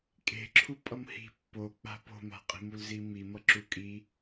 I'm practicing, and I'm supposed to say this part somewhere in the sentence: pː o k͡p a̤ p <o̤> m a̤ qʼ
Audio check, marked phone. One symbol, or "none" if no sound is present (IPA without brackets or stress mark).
o̤